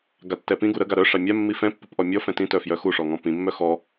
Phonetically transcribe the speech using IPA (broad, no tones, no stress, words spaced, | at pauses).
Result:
ɡatːɛpĩɡu ɾəɡa ɾœʂa mʲamːi fɛ̃pːip ʔɔmʲɔfɛ̃ tĩtœ fjœxuʂɔ ŋɔ̃pĩmːœ xɔ